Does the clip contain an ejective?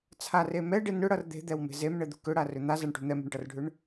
no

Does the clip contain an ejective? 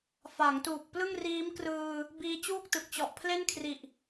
no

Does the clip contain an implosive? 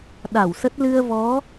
yes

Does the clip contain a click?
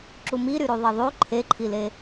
yes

